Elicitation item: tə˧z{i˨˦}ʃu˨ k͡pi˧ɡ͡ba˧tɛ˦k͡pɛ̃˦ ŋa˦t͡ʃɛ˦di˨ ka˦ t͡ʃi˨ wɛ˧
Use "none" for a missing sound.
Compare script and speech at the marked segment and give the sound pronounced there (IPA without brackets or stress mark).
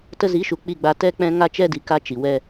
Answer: i˨˦